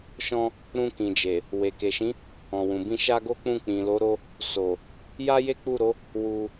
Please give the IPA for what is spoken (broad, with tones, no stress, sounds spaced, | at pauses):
ʃ ɔ̃˧ | ɾ ũ˧ k ĩ˨ d͡ʒ e˨ | w e˨ k e˨ ʃ ĩ˨˦ | ɔ̃˨ w ũ˨ b ĩ˧ ʃ a˦ ɡ o˦ k͡p ũ˦˨ k͡p ĩ˨ l o˨˦ ɾ o˧ | s o˨ | j a˦ j e˦ k͡p u˦˨ ɾ o˨˦ | w u˧